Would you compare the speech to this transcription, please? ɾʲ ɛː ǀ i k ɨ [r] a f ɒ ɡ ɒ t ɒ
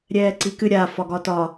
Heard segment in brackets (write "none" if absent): ɾʲ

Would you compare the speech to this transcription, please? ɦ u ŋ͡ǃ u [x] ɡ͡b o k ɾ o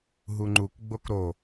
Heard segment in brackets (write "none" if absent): k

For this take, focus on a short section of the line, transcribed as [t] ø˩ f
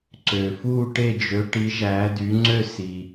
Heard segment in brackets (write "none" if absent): ǀ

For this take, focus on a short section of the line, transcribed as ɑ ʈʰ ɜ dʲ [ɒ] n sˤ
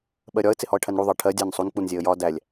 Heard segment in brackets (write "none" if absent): ɑ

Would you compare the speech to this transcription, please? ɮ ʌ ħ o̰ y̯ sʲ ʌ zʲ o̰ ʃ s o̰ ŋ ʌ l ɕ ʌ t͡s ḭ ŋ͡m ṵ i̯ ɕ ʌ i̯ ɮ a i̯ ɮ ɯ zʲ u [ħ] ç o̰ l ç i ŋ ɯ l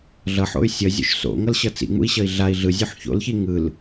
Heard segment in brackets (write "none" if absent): ħ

